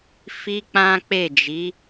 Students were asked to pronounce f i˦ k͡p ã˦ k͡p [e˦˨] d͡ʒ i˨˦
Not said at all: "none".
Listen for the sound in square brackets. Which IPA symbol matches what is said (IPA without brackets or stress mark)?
e˦˨